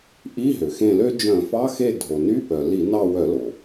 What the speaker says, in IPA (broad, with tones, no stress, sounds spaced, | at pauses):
ʔ i˧˥˧ ɦ ø˩ x ẽ˦˨ l ø˥ d͡ʒ œ̃˧˩˧ f ɑ˧˥˧ x e˦˨ dʱ o˩ n y˧˥˧ p œ˩ l i˧˩˧ n ɑ˦˨ w œ˧˩˧ l o˩